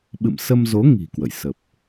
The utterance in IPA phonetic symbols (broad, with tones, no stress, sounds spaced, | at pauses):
ɓ ɨ̰˧˨ m s ə˧ m z o˨˦ ŋ i̤˨˩ k w ə̰˧˨ j s ə˨˩ p̚